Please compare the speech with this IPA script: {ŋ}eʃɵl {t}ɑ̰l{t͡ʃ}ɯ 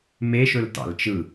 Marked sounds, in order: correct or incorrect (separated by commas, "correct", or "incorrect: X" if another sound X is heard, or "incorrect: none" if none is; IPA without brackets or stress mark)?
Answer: incorrect: m, correct, correct